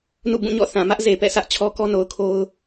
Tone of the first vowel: falling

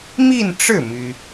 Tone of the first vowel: falling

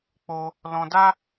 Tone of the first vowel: high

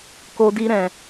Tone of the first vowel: high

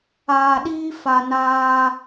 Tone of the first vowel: low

